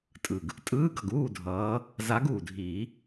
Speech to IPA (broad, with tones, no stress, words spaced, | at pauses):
tʼɯ˨˩ɡ | tʼɯː˧˥˧ɡʌ˨˩ɡ uː˥˨dʱʌː˨˦ | za˨˦ɡuː˨˩dʱiː˨˩˦